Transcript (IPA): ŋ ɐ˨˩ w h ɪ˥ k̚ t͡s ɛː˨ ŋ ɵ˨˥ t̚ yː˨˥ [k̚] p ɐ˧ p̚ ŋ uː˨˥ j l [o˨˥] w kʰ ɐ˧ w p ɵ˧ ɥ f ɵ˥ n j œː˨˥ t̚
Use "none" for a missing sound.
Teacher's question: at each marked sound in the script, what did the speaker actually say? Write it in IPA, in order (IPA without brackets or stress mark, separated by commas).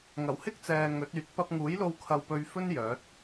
t̚, o˧